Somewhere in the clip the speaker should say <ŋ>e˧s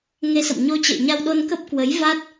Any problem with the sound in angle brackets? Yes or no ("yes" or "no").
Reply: no